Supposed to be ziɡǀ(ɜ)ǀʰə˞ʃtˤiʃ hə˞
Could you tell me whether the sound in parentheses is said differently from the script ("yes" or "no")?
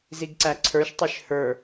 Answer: yes